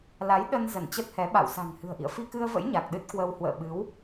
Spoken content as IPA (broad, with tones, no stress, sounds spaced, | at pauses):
l a˨˦ j ɗ ə˧ n z ə˧˩ n t͡ɕ ə˦˥ t̚ h ɛ˨˦ ɓ a̰˧˨ w s a̤˨˩ ŋ h ɨ̤˨˩ ə̯ ʔ ḭ˧˨ ə̯ f i˧ k ɨ˧ ə̯ v ə̰˧˥ j ɲ a˨˩ k̚ ɗ ɨ˦˥ t̚ k w ə˧ w h w ə̰ː˧˨ ɓ ɨ˨˦ w